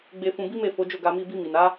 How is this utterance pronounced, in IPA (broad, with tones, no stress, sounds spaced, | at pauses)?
ɡ͡b e˧ f ũ˧ b i˦ m e˦˨ f o˨˦ d͡ʒ o˦˨ ɡ a˧ m i˧ b i˧ m i˨ n a˨˦